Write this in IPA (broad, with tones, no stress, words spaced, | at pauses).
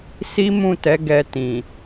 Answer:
si˦mũ˦˨tɛ˨˦ ɡɛ˧tĩ˨